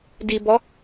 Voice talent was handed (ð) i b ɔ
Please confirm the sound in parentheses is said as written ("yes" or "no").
no